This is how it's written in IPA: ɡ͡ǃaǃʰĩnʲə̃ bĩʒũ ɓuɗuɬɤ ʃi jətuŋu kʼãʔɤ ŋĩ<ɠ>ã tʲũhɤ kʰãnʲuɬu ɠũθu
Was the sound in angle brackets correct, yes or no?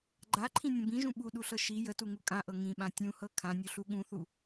no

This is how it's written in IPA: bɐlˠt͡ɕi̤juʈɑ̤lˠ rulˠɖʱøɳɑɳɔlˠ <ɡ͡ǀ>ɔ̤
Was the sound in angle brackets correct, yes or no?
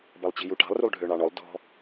no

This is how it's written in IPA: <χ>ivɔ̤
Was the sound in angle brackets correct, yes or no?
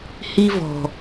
no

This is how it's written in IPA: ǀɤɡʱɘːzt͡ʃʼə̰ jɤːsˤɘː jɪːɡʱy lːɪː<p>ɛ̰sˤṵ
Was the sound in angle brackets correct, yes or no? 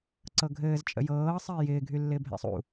no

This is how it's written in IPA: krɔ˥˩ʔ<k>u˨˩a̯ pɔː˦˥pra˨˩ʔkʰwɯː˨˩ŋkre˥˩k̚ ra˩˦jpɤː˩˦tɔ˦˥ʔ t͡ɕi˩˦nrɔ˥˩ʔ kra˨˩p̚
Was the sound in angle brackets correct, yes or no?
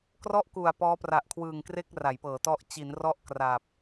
yes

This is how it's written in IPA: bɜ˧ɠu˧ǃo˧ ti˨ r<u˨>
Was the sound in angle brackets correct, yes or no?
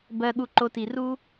no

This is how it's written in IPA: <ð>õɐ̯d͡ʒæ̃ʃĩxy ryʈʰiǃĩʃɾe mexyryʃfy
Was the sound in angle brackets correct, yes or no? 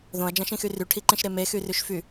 yes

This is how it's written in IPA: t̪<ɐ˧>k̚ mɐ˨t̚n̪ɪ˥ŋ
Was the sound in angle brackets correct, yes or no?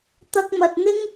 yes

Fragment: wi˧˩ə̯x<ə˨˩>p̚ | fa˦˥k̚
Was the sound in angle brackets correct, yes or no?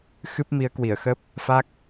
no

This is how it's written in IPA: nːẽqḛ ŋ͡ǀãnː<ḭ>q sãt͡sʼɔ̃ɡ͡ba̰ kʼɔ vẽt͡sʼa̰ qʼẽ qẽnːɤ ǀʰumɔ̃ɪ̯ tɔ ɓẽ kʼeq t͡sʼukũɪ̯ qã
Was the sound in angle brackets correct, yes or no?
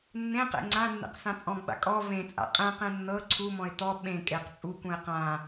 no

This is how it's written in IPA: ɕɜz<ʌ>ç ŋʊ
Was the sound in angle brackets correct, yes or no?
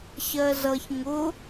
yes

